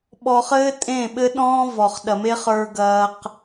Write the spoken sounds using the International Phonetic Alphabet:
ɓɔ˧χɘː˦tʼẽ˦˨ ɓɘ˦ɗɔ̃ː˦ vɔ˨χ ɗɐ˨me˦χə˞˧ ɡɐː˧q

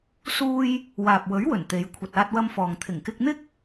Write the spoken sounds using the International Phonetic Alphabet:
suː˥j | waː˨p̚wɵ˨˥ɥwɵ˨˩n t̪e˨˧j kʷʰɐ˨t̚aː˧t̚wɐ˧mfɔː˨ŋ t̪ʰɪ˨˩ŋkɪ˧k̚n̪ɪ˥k̚

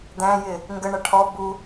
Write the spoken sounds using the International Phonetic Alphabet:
d̪æ̃jɪ | ŋɡəɳʌ ʈʰɔ bu

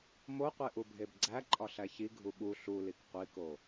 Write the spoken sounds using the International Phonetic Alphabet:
moqʷe ʔubʱebɡ͡ǀæ ǃʼɒɬæçi ɡʱuɓu ɬulik qʷiko

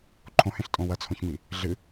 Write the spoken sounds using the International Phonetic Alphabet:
ǃʰõhẽɬtʼõ wɐt͡sʰõçmi | ɮɨ

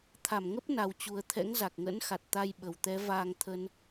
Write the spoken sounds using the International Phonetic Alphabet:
t̪ʰa˧˩mŋə˦˥p̚na˨˩wt͡ɕu˨˩ə̯ t̪ʰɛ̰˧˥ŋza˨˩k̚ŋə̰˧˥n xa˨˩t̚t̪a˧j ɓə˨˩wt̪ɛ˨˦ vaː˧ŋt̪ʰə˧n

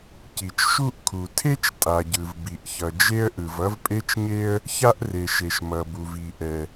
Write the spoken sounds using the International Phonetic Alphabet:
ci˩t͡ʃʃu˥ʔkʰu˩ tʰe˥t͡ʃ tʼa˩ɟɯ˩vbi˩ʔçʌ˩ d͡ʒe˥ə̯ʔɯ˩v ʌ˥vpʼe˥t͡ʃɲe˥ə̯ | ça˥ʔre˩ʃe˩ʃ mʌ˩bu˩v i˩ʔɛ˩

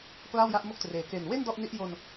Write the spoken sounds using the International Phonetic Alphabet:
kla˥˩wja˦˥ʔmo˥˩k̚treː˨˩ ke˨˩nwe˥˩n dɔ˥˩ʔni˦˥ʔ jo˧n

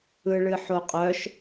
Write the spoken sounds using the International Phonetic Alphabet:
ɯɭɨħoqʼœʃ

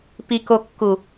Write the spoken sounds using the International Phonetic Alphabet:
pikokːu

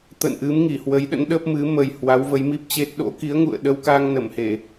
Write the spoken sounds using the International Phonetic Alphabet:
t̪ə̰˧˨nʔɨ˨˦m ŋi˧˩hwə˨˦jɗə̰˧˥n ɗə˦˥p̚mɨ˨˦ mə˨˩j hwa˨˦wvə˨˦jmi˦˥p̚t͡ɕe˦˥t̚ ɗo̰˧˥ki˨˦ə̯ŋṵ˧˨ə̯ ɗə˧wka˧ŋnə˧˩mhe˧˩˨

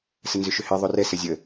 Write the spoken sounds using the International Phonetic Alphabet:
sənzʏʃʏhi ðˤorɛsə zʲə

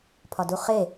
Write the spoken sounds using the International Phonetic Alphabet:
pʰɒduχe

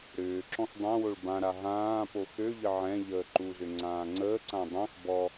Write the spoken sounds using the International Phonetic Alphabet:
ɾʏːǁɔ̃x dˤãwoɭ bãɾa ɦãːpo xøʎə ʕɛ̃ ʎəːǃuzʏ ŋ͡ǀãːŋ͡ǀəːǀã dˤãx bɔ

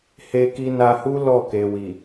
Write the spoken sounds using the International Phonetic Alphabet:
he˧ki˧na˧hu˦ lɔ˦˨ke˨wi˨

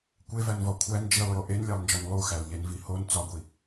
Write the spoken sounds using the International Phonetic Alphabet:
kʷevænvɒ kʷʰæn d͡ʒilˠjo ʔenlʲælˠnd͡ʒɒn lˠuxælʎenvi hon t͡sɒɡʷi

